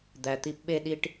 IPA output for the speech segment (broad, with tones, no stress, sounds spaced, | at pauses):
d̪ æ˧ t̪ i˥ p ɓ e˥ ɗ i˥ ʈ